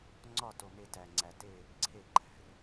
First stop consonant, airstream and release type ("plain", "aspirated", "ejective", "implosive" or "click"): click